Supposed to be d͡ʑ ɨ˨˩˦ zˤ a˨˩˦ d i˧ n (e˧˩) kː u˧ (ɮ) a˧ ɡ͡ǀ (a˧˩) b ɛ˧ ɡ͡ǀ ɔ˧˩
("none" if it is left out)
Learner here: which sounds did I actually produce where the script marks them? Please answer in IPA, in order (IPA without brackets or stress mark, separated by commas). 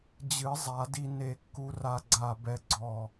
e˧˩, r, a˧˩